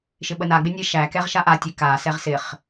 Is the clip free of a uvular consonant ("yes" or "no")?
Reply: no